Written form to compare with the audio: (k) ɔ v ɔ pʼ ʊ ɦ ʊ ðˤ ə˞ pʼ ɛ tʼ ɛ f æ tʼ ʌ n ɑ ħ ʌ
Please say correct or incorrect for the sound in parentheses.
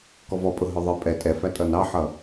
correct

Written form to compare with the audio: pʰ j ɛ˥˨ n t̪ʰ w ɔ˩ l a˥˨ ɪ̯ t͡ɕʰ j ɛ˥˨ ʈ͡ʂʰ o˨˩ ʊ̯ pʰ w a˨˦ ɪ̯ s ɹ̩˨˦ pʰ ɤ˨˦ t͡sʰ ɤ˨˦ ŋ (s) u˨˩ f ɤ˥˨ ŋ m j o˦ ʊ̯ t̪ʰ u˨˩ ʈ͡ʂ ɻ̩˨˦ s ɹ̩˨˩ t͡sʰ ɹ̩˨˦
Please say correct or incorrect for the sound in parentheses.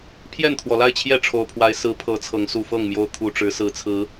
correct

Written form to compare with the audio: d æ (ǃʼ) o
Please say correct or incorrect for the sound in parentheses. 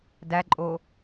correct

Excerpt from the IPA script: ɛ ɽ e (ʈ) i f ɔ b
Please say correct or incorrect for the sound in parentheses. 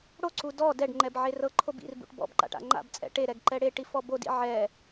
correct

